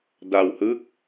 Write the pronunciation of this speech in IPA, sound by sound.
d a˧ w h ɯ˦˥ k̚

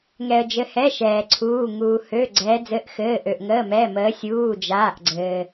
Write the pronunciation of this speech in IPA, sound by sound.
ŋ ɛ˧ ə̯ d͡ʒ ɘ˧˥ h ɛ˧˥˧ ʃ ɛː˧ ǀʰ uː˧˥˧ ŋ uː˧ h ø˧˥˧ ɡ͡ǀ ɛː˧˥ d͡z ɘ˧˥˧ ʔ x ɘː˧˥˧ ʔ ø˧ ʔ ŋ əː˧˥˧ m ɛː˧˥˧ m əː˧˥ sʲ uː˧˥˧ d͡ʒ aː˧˥˧ ʔ ɡ͡ǀ ɘː˧

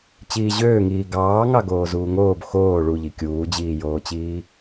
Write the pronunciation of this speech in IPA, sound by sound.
t͡ɕ iː ʑ øː ŋ iː ɡ ɑː ŋ ɑ ɡ oː z uː ŋ oː b x oː ɭ u ʎ i kʲ uː d͡ʑ iː j oː t͡ɕ iː

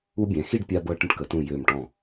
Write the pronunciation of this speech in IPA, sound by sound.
u˧ bʲ ɛ̃˩˧ x i˥˧ ɖ pʲ a˧ b ɤ˧ ʈ ə̃˧ ʈ k ə˩˧ t ũ˧˩ j ø˧˩ m ʈ ɔ̃˧˩

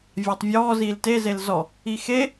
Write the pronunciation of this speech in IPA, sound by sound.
vʲ a tˤ vʲ ɔː z iː l t e z e l z ɔ | i x e

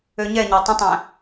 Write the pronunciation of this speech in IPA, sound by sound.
ø ɲ ɛ ɲ æ tˤ ə̃ tˤ æ̃

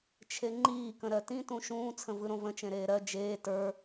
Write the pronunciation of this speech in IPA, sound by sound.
t͡ʃʰ e ŋ͡ǃ iː k ə̃ ɾ ɜ t ĩ t ũ ʃ ũː t͡sʰ ə̃ v ɯ ɾ õ v ə̃ t͡ʃ ẽ ɾ eː ɾ ɜ d͡ʒ eː t ə˞

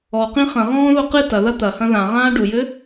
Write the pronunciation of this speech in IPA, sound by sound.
ɔ q ĩ χ ɐ̃ ʁ ɔ̃ː ð o q ɨ t ɐ ð ɐ t̪ ɐ h ɐ̃ ð ã ʁ ãː ɖ u j ɘ

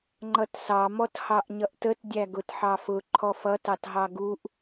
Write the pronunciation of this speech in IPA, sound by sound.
ŋ͡ǃ ʌ t s ɑ m ɔ t h ɑ ʔ ɲ ʌ ʔ t ə t dʲ æ ɡ ʊ t ħ ɑ f ʊ ǃʰ ɔ f ʌ t ɑ t ɦ ɑ ɡ u ʔ

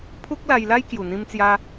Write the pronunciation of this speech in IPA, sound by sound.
pʰ u˦ k̚ l a˧ j l a˦ j k j u˨˩ n̪ ĩ˧ m t͡s j a˧

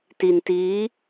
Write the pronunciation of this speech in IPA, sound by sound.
t i˧ n t iː˦˥

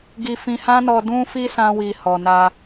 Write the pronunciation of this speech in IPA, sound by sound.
ɡ i˧ f ĩ˧ h ã˦ n ɔ˧ d ũ˧ f i˧ s ã˦ w i˧ h ɔ˨ n a˧

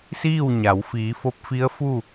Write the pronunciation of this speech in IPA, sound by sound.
s iː˥˨ w ɲ a˩˧ w f iː˩˧ f o˧˥ p̚ f i˧˥ ə̯ f u˥˨

